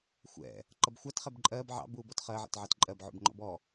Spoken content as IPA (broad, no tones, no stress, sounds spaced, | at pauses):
xʷ ɛ̰ | ǃ ʌ b xʷ ɑ t χ ɛ b ǃʼ ɜː b ʕ ɑ̰ b uː b ɔ t χ ɜ ʕ ɛ̰ t ʕ ɑ t ǃʼ ɜ b ʕ ṵ b ŋ͡ǃ ɔ̰ b ɔ